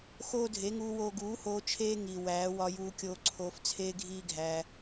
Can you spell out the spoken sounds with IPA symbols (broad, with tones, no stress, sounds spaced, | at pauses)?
x oː˦ dʱ e˨˦ ŋ uː˧ w oː˧ ɡ uː˨˦ h oː˧ t͡ʃʰ eː˦ ŋ i˨ w æː˨˦ w ɒ˧ j uː˧ kʲ oː˧ ǀʰ oː˧ f t͡sʰ eː˦ ɡʱ iː˦ ɡʱ æː˧